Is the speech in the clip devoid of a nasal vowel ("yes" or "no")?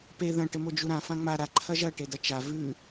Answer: no